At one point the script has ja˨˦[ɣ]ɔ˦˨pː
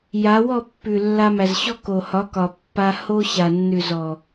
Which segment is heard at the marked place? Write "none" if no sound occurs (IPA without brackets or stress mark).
w